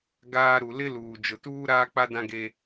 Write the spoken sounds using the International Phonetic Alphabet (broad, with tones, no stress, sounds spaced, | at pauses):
ɡ aː˦ ɾ u˨ l ɪ˦ l uː˨ d͡ʒ ʊ˨ t uː˦ ɾ aː˦ k͡p a˦ d ã˦ ɡ e˦